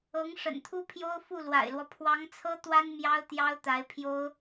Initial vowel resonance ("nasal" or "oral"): oral